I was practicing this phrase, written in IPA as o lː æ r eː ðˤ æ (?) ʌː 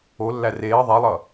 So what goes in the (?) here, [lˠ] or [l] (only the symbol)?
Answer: lˠ